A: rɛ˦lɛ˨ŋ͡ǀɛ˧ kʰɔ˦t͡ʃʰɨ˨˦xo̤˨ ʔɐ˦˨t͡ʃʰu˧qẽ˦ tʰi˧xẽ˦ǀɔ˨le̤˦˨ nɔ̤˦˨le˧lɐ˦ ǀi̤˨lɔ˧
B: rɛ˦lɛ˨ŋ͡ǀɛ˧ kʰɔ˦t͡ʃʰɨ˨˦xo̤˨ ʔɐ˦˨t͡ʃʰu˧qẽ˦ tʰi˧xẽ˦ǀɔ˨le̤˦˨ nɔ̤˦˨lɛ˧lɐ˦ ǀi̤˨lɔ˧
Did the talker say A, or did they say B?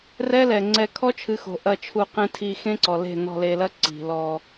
A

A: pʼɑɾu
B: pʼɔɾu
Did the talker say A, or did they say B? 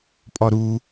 B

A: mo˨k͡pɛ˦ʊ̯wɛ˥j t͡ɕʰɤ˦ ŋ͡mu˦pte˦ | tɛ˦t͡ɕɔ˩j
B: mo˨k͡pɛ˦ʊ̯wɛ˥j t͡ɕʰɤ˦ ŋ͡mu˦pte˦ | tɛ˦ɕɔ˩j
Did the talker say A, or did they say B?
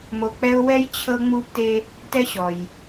B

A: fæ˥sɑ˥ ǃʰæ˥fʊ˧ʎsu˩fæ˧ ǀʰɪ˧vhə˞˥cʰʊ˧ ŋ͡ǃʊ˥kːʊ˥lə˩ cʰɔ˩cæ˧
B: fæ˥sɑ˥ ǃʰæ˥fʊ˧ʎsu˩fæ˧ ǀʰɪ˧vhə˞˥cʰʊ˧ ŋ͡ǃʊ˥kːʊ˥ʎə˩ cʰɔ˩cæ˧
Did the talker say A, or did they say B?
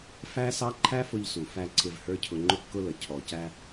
A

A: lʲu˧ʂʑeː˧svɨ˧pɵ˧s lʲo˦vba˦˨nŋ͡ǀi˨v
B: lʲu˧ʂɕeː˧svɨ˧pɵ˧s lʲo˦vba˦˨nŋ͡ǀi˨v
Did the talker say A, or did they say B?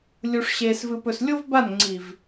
B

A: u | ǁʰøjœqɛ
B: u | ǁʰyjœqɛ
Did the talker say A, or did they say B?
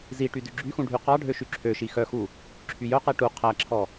B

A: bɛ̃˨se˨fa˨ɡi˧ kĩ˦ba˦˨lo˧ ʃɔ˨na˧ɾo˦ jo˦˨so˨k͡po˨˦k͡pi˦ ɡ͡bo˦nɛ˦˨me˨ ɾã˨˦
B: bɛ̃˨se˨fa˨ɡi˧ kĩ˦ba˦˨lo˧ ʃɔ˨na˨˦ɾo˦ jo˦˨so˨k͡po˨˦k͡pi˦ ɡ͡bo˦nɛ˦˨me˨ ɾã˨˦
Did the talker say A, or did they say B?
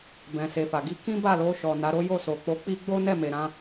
B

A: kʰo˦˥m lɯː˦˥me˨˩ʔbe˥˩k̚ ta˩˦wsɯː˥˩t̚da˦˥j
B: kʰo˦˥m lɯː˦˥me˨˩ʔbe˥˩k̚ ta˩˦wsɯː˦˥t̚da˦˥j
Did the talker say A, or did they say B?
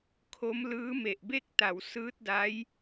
B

